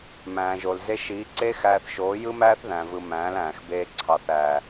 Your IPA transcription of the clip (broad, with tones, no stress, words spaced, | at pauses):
mæ̃ː˨ʒo˨l ze˧ʃiː˨˦ǀeː˦xæː˧θ ʃoː˨˦jɯ˦mæː˦θ ðæ̃˨vɯ˨ mæ̃ː˨˦læ̃ː˨xbeː˧ ǀʰɑ˨θ æ˨